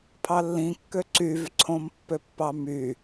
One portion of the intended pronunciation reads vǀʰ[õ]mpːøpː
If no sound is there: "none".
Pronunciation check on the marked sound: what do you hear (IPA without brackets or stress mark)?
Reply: õ